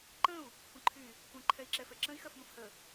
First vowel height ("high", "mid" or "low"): mid